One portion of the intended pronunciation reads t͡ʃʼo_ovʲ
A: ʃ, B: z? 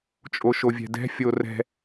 A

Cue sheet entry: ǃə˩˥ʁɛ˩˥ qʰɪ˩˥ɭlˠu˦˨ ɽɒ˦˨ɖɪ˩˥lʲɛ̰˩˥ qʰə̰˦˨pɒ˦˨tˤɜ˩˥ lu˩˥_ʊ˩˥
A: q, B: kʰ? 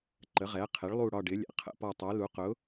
A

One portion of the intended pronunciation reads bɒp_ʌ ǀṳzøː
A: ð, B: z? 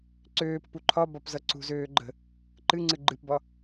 B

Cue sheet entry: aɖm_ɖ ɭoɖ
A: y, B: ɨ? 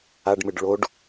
B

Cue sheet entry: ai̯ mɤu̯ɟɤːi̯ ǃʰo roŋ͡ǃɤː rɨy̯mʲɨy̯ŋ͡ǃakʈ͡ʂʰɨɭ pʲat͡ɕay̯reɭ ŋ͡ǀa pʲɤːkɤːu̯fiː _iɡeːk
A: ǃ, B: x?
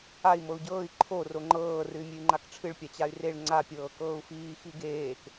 B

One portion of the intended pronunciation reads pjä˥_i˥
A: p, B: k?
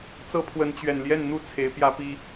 A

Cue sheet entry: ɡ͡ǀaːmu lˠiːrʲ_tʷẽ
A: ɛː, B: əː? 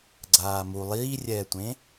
A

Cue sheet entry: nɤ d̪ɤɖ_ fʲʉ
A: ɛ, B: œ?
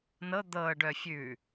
B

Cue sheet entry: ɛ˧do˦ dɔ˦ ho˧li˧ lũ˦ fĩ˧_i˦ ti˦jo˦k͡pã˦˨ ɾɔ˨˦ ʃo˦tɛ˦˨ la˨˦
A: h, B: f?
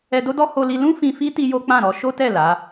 B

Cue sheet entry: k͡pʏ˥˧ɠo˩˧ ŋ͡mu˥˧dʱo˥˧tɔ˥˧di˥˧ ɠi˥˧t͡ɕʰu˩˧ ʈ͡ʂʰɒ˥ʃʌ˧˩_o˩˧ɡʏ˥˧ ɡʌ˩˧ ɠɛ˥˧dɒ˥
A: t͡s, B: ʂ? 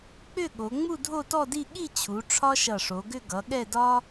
B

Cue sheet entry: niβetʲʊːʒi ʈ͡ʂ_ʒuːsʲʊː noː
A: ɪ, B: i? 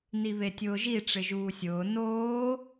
A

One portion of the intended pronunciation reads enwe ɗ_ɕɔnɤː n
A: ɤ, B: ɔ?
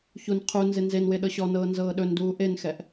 A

